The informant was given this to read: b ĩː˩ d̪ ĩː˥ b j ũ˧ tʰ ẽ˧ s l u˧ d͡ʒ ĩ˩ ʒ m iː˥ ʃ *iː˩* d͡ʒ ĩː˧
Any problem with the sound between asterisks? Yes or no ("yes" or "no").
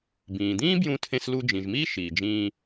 no